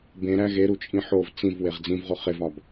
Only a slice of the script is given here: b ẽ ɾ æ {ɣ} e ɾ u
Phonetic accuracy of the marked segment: correct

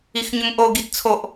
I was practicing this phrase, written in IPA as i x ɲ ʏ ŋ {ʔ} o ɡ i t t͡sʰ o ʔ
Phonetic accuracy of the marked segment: correct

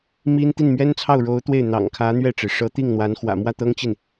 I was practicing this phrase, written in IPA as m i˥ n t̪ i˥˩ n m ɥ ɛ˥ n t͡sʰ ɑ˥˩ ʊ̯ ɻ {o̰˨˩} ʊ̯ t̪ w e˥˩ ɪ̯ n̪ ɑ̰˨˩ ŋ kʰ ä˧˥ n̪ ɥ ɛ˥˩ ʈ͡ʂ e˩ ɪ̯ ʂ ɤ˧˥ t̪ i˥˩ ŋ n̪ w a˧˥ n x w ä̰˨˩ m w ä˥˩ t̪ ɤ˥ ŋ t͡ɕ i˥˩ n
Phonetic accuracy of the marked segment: incorrect: o˧˥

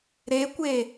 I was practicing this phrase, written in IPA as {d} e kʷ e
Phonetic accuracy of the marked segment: incorrect: ɾ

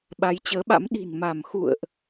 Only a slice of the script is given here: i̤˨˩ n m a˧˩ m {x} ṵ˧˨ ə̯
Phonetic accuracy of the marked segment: correct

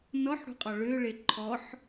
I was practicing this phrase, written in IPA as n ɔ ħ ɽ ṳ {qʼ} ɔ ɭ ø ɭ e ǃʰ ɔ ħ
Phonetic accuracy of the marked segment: correct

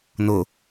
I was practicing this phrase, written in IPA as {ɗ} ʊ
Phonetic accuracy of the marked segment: incorrect: n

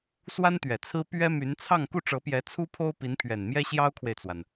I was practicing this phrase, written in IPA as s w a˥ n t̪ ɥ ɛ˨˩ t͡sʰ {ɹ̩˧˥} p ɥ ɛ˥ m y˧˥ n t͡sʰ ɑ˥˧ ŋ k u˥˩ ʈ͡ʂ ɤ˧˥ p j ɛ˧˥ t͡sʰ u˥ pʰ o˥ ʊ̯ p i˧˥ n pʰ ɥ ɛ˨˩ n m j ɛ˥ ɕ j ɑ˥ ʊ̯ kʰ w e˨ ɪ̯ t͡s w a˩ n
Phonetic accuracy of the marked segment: incorrect: ɹ̩˥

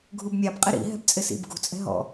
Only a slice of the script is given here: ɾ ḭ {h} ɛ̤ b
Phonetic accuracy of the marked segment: incorrect: ɦ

